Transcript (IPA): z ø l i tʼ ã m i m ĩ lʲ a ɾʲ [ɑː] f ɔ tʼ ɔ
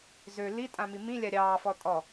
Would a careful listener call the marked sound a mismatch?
no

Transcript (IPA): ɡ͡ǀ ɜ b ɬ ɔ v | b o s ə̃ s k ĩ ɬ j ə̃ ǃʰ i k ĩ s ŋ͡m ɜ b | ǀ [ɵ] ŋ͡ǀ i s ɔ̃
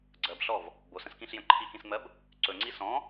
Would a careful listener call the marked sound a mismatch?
no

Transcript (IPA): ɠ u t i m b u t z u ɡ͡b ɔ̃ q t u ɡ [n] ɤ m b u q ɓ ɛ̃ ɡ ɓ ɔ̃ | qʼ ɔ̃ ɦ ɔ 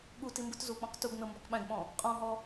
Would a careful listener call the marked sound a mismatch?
no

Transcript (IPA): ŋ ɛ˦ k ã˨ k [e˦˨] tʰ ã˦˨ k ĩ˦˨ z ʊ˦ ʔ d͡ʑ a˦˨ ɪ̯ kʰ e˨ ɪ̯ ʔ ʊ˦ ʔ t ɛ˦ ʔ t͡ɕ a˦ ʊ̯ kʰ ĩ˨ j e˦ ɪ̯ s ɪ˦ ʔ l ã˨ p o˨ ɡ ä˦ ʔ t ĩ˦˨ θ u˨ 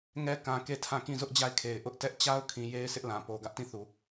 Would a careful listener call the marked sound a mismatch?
no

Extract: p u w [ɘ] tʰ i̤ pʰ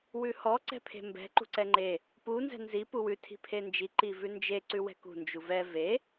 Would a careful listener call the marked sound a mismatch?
yes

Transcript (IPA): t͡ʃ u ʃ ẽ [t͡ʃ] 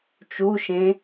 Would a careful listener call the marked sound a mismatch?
yes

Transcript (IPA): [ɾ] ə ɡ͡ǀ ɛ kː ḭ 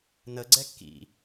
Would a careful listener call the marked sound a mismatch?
yes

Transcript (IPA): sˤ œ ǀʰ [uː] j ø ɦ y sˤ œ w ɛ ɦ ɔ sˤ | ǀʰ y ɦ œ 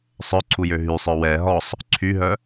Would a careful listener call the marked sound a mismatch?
yes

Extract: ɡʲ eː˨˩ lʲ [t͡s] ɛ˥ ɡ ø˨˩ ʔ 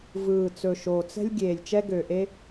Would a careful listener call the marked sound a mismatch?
yes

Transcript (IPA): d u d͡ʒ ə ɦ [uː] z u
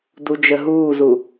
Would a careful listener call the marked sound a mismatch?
no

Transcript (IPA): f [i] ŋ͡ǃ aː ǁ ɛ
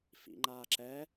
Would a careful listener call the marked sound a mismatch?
yes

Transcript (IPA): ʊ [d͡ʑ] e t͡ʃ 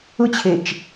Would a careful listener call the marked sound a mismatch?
yes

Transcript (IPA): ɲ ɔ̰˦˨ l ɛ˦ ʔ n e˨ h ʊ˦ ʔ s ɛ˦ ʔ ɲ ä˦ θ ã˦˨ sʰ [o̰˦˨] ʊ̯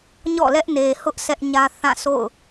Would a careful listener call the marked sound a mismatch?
no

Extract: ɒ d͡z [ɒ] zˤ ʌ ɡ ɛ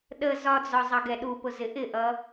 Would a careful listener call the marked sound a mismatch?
no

